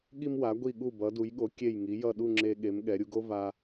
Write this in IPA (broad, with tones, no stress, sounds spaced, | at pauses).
ɠ i˧ m w a˩˧ ɡʷ i˧˩ ɠ u˧˩ b ʌ˩˧ d u˩˧ j ɠ o˩˧ kʲ e˧˩ j ŋ i˩˧ j ʌ˧˩ ɗ u˥˧ ŋ͡ǁ e˧ ɠ e˩˧ m ɠ ɛ˩˧ ɾʲ u˧ ɡ o˥ v a˧